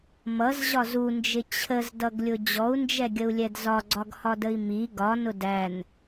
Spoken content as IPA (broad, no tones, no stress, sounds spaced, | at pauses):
m ʌ z ʑ ɒ z u n d͡ʒ ɪ t͡ɕʰ ə z d ʌ ɡ lʲ ʊ d͡ʑ ɔ u̯ n d͡ʒ ɛ ɡʲ ə u̯ lʲ ɛ d z ɒ ɡ͡ǀ ɒ ɡ h ɒ d ə i̯ m i ɡ ɒ n ʊ d æ n